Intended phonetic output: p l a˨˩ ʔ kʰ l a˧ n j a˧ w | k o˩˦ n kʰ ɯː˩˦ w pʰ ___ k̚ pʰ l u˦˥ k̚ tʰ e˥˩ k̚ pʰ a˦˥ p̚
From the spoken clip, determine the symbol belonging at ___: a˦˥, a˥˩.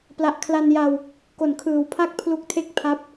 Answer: a˥˩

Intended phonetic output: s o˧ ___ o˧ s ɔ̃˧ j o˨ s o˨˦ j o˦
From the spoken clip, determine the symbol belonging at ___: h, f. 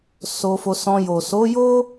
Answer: f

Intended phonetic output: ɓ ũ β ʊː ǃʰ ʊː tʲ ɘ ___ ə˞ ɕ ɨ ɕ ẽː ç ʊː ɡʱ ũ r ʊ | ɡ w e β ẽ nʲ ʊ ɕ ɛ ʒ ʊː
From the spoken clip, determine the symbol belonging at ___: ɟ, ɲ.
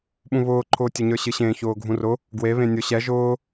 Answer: ɲ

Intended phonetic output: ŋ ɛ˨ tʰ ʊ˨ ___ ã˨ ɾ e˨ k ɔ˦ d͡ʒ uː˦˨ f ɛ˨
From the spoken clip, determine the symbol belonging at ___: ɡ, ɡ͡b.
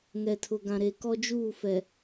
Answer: ɡ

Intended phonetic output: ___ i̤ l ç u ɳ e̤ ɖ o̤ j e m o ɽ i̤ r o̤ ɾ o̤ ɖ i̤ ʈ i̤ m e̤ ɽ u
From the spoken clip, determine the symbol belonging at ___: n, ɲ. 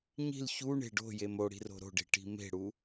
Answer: ɲ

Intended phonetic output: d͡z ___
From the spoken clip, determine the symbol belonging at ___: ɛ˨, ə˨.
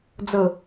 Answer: ə˨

